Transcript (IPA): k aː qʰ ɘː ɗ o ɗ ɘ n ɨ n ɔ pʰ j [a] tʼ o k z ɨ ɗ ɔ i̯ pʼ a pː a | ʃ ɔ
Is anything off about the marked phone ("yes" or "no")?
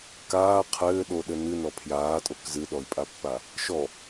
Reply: yes